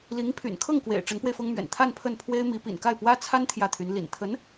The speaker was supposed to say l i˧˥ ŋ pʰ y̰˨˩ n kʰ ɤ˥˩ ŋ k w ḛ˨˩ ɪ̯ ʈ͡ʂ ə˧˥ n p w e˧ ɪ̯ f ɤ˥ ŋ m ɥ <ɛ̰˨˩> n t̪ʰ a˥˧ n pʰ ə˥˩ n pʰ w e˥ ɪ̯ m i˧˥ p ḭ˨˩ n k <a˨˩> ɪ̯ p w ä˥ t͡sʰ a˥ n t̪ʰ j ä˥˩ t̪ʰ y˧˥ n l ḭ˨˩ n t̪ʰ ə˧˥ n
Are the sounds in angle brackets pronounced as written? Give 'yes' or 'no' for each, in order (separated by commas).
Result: yes, no